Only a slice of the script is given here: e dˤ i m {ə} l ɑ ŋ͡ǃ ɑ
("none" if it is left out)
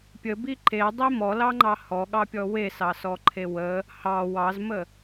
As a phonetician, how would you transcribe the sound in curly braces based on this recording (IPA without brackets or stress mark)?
ɔ